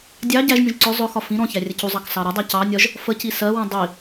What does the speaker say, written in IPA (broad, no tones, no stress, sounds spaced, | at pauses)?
dʲ ɑ ɟ æ ʒ nʲ ũ ʒ ǀ ʊ zˤ ʊ x ɒ f ĩ ɾ ɔ̃ ç æ rʲ ə c u zˤ ɑ k s ɑ ɾ ɒ dˤ æ c ɑ nʲ ɒ ʒ | f ə c i s ɜ w ũ dˤ i